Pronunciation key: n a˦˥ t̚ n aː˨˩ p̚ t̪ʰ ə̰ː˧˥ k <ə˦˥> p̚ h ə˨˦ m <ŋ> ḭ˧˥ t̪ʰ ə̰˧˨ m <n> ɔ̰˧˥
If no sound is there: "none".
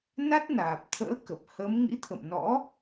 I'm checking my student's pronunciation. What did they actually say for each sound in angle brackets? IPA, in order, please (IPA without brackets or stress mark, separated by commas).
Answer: ə˨˩, ŋ, n